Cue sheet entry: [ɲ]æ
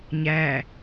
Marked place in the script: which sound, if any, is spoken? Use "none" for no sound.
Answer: ɲ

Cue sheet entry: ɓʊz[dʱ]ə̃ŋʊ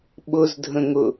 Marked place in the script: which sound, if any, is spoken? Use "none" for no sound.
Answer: dʱ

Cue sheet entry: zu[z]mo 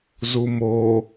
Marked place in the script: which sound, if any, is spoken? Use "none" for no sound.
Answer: none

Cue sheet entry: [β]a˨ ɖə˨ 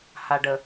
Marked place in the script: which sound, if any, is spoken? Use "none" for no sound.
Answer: h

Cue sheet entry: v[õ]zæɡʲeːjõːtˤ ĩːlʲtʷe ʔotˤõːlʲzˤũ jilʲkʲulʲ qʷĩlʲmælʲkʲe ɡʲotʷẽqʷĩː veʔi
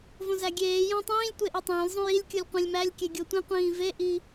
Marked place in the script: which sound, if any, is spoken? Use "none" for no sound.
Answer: õ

